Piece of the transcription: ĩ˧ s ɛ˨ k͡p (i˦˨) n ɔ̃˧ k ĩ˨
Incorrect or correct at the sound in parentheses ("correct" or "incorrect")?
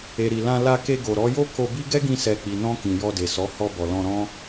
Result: incorrect